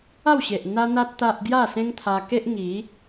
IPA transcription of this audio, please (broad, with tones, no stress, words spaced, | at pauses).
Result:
a˥˧wɕe˨ʔ n̪a˦n̪a˦t̚ t̪a˦ʔ ɡja˥˧sẽ˦ŋt̪ʰa˧ke˦ʔ ŋi˨˦